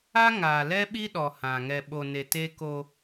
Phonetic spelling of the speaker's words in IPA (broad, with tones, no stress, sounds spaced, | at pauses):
a˦ ŋ aː˨ l ɛ˦ ɓ i˦ ɗ ɔ˨ h ã˨ ŋ ɛ˨ ɓ o˨ n e˨ t e˦ k o˦